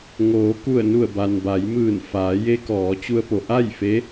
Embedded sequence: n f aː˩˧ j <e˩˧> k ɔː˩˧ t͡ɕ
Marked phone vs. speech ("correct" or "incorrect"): incorrect